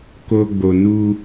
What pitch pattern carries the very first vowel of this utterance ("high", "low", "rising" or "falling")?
high